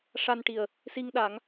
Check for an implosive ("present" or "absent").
present